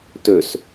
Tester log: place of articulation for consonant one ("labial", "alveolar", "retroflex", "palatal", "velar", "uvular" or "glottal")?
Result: alveolar